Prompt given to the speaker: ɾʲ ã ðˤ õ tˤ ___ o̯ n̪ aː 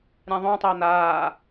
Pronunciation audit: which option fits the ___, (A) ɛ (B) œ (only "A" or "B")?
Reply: A